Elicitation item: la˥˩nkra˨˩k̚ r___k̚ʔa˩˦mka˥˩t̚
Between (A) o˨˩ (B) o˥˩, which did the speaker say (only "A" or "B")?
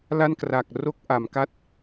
B